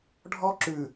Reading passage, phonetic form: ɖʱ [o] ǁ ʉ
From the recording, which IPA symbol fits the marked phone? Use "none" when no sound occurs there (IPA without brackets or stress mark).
ɔ